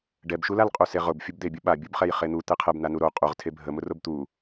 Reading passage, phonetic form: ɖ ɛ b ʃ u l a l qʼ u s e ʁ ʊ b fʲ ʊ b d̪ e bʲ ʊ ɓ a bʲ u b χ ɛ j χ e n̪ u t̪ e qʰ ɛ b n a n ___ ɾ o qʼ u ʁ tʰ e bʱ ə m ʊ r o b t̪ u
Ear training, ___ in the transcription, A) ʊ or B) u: B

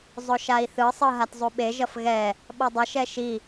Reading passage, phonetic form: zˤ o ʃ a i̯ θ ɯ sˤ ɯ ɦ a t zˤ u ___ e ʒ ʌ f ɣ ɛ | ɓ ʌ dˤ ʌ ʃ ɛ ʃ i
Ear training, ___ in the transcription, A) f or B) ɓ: B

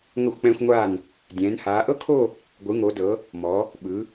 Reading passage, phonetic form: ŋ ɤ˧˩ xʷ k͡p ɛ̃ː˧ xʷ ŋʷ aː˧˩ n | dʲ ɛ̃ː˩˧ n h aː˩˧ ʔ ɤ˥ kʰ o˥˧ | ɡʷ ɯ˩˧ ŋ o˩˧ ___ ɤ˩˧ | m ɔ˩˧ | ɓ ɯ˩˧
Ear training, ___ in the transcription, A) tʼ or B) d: B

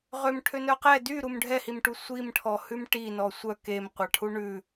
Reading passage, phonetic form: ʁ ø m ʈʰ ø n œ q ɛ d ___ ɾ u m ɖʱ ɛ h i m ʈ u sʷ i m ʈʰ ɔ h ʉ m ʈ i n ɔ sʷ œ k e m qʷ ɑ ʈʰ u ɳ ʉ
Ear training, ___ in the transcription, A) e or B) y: B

